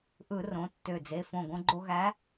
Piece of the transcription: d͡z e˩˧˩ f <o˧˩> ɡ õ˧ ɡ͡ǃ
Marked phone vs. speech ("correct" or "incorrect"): incorrect